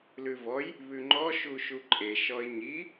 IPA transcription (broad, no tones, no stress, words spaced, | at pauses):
lʉvɔj | βʉŋ͡ǃɔ ʃuʃuǃʼe ʃɔɪ̯ɲi